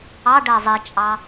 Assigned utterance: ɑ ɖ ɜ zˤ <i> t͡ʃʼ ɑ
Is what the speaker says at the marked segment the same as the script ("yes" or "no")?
yes